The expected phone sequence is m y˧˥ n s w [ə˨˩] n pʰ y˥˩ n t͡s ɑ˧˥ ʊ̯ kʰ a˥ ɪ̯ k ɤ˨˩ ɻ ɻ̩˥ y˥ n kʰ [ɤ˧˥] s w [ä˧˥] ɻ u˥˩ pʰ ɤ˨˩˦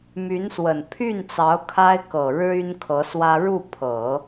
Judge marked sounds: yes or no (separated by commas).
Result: yes, yes, no